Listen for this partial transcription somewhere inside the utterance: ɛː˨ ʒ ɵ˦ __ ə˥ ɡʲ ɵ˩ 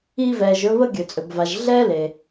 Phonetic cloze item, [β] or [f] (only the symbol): β